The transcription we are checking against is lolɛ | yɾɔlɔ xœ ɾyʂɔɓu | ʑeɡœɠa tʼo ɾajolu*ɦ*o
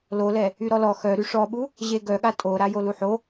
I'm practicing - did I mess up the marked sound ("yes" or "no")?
yes